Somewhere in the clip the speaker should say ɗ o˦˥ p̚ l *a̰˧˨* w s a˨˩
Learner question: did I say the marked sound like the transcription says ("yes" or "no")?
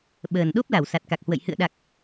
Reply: no